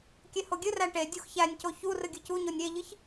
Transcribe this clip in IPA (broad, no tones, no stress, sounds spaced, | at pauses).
kʲ e h o ɡʲ ɨ r æ ʈ e dʲ u x ç æ nʲ c o ç u r ɨ ɡʲ ɨ c u ɲ o nʲ ɾʲ e ʎ ɨ ç